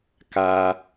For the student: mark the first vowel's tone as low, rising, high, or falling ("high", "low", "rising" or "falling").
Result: high